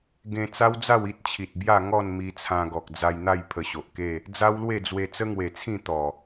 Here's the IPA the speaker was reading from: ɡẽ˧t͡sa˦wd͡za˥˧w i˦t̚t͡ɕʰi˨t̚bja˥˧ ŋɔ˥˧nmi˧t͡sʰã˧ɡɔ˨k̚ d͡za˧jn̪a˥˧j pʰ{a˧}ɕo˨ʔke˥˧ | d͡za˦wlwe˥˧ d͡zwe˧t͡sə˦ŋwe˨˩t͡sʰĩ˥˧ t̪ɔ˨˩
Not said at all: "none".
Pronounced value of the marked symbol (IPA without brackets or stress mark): ə˧